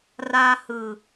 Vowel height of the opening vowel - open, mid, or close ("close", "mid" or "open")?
open